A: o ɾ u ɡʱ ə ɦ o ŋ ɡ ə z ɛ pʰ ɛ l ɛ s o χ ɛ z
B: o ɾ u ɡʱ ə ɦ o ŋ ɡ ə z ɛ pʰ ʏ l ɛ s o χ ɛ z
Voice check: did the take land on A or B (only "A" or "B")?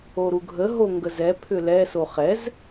B